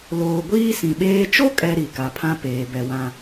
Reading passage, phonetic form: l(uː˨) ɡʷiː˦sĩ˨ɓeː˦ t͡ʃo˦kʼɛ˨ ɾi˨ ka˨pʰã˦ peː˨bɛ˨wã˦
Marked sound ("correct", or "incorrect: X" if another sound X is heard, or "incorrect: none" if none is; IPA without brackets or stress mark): incorrect: oː˨